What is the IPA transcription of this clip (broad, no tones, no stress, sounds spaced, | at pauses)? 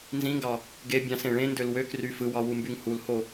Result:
n z ĩ ŋ ɡ ɑ | ɡ e bʲ ɑ̃ s ẽ ɭ ẽ n d ø l w ø k r y f ɯ w ɑ w u m b y ŋ h u l h o